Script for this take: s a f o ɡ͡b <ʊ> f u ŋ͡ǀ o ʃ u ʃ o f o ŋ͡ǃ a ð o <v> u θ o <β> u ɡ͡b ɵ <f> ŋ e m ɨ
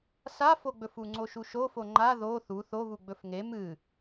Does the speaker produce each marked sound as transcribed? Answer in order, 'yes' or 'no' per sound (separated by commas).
no, no, yes, yes